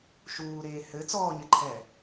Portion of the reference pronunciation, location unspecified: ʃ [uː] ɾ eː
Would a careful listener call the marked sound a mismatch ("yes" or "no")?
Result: no